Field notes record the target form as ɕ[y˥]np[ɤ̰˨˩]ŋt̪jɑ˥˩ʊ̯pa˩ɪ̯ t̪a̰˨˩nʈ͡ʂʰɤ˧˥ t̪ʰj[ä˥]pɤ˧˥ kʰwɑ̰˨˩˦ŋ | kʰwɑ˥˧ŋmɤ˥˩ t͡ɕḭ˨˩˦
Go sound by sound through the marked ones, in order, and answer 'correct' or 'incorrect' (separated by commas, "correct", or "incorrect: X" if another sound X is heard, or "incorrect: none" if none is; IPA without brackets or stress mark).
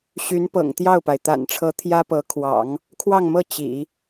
incorrect: y˧˥, correct, correct